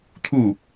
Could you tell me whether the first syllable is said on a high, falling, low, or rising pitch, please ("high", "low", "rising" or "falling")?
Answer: falling